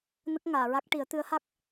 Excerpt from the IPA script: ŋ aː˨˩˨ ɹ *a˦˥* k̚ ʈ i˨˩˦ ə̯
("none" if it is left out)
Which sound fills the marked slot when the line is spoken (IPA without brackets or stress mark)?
a˦˥